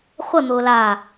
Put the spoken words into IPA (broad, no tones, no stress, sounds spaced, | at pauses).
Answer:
χʷ ə n̪ ʊː l a